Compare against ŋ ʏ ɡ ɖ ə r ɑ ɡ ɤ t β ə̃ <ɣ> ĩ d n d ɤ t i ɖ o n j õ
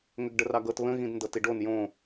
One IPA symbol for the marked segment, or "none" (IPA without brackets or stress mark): ɣ